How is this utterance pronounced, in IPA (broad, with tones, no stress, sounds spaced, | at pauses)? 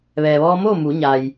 ʋ ɛː˩ ʋ ɔː˧ m oː˥˨ m u˩˧ ɲ a˩ j